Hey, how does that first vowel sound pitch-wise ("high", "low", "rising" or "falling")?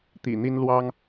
low